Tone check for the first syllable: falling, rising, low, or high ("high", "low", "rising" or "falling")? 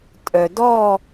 low